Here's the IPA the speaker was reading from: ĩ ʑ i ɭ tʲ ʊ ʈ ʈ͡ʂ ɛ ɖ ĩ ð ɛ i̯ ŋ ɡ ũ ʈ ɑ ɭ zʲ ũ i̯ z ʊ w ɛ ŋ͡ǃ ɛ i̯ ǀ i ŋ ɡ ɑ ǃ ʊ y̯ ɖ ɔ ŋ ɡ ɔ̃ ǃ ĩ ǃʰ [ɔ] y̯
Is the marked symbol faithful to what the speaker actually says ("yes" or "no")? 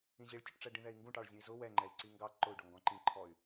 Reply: yes